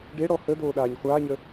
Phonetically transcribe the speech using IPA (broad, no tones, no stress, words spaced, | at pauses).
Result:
ɖeɽɔ hə doːɗaːɲχʷaːɲə